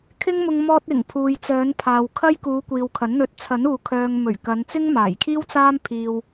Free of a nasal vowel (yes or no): yes